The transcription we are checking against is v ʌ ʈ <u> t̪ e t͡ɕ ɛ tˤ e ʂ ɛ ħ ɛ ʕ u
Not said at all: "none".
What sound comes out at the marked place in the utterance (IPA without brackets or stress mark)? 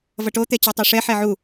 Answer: o